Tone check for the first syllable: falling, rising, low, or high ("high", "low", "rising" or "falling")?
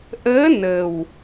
rising